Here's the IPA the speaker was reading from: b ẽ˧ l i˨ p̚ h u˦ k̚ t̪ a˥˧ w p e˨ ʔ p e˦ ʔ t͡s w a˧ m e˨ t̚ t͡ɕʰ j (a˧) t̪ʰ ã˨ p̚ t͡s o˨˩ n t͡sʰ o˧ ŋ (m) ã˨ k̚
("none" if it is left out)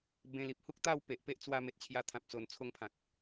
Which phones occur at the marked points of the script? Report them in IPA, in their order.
a˧, pʰ

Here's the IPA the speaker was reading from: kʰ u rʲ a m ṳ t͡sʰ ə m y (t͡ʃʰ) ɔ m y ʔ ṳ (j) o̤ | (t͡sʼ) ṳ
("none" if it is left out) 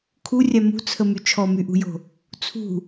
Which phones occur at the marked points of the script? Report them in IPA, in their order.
t͡ʃʰ, j, t͡sʰ

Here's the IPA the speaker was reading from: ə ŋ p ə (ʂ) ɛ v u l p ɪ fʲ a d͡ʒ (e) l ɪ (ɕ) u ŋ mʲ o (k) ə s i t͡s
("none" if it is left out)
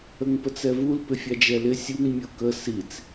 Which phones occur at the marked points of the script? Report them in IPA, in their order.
t͡s, ɛ, sʲ, k

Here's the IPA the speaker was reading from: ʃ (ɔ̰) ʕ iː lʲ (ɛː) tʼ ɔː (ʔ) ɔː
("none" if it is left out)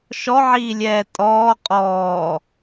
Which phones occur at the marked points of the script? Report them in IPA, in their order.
ɔ, ɛː, qʼ

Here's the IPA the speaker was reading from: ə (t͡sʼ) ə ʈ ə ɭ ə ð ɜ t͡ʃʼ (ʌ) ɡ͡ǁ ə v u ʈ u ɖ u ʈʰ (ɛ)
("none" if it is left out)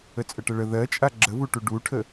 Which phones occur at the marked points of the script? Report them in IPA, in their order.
t͡sʼ, a, ə

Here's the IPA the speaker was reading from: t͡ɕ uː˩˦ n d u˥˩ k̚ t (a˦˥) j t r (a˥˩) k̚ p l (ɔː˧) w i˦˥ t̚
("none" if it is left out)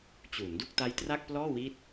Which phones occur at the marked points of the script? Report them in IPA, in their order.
a˦˥, a˥˩, ɔː˥˩

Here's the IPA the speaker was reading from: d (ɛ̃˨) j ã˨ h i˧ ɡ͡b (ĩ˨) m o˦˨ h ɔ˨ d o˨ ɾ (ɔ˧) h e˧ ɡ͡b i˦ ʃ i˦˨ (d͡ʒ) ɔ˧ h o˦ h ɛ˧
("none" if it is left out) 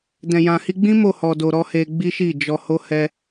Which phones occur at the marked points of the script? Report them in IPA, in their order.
ɛ̃˨, ĩ˦, ɔ˧, d͡ʒ

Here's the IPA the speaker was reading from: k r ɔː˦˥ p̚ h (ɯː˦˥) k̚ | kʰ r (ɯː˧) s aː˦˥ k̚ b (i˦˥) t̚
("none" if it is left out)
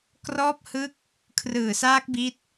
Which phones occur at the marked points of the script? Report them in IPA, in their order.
ɯ˦˥, ɯː˨˩, i˦˥

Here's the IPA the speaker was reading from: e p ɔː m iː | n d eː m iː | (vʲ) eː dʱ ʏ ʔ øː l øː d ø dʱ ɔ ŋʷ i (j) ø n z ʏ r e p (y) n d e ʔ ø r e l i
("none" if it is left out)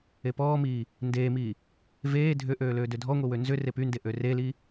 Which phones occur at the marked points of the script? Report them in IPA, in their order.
v, w, y

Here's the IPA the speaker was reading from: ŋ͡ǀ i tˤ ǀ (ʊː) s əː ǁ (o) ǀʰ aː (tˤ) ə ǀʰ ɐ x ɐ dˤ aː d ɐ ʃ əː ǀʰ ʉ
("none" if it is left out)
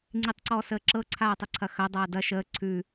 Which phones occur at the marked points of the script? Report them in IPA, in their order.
ɔː, ɤ, tˤ

